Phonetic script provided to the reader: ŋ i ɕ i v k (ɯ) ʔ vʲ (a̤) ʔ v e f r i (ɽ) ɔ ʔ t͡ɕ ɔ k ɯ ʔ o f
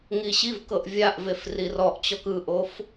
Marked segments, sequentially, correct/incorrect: incorrect: ɤ, incorrect: a, incorrect: r

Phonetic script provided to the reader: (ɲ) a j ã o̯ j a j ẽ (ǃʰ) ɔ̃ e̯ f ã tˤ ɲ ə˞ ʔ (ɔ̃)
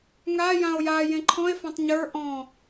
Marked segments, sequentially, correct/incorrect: incorrect: ŋ, correct, correct

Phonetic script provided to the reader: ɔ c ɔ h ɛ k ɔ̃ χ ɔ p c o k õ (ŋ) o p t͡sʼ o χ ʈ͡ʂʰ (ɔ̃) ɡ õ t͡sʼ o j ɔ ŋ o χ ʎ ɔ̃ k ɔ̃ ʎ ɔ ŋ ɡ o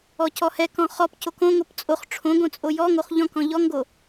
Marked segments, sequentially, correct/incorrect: correct, incorrect: õ

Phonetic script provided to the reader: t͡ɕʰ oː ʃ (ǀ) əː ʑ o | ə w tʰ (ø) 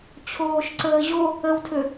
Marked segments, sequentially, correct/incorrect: correct, correct

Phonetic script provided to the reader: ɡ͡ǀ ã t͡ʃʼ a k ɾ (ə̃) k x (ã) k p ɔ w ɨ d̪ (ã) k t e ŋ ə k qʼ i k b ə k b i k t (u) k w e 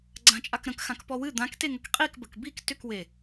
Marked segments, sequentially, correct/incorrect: correct, correct, correct, incorrect: ʏ

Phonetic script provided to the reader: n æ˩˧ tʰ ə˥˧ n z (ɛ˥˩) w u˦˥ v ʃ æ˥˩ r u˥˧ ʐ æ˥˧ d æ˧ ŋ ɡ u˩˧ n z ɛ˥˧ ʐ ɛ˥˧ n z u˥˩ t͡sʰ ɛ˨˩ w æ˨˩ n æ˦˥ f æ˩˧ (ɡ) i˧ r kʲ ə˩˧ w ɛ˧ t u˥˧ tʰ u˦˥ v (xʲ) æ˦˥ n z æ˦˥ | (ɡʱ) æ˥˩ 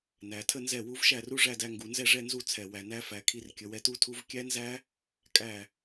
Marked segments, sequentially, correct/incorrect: correct, incorrect: kʰ, incorrect: kʲ, incorrect: kʼ

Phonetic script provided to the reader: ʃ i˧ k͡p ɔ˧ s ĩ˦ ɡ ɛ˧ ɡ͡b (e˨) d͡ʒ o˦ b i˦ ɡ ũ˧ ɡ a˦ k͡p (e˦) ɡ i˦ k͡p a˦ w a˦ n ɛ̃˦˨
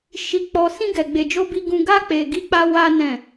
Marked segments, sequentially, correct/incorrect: incorrect: e˧, incorrect: e˧

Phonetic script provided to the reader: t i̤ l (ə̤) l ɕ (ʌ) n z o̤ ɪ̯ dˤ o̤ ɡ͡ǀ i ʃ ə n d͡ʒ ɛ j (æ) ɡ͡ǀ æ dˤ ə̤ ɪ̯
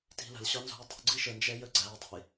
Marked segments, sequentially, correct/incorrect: correct, incorrect: ɒ, incorrect: ə

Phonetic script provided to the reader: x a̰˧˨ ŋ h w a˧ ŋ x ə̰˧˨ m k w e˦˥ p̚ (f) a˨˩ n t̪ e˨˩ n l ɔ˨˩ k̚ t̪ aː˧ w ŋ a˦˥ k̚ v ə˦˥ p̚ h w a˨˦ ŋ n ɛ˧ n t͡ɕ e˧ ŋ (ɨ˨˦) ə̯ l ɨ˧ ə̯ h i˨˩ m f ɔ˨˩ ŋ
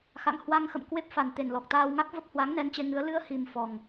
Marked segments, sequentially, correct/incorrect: correct, correct

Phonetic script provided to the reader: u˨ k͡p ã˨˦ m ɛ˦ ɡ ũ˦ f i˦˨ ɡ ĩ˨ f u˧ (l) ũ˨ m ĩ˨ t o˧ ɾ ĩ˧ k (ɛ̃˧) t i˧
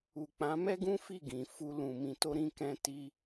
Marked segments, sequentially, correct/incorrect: correct, correct

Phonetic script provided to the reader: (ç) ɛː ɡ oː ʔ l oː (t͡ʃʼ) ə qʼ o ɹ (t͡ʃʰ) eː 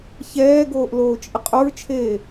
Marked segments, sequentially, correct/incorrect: correct, correct, correct

